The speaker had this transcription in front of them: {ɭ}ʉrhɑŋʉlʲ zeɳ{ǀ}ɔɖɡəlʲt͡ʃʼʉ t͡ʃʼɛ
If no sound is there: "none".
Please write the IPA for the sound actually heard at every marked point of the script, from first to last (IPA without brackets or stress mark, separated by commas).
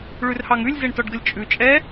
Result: ɭ, t